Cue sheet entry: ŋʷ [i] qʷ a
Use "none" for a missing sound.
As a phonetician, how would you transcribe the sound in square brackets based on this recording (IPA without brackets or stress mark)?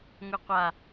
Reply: i